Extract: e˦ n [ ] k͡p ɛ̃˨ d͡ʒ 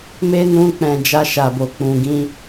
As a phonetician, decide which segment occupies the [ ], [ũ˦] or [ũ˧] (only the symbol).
ũ˧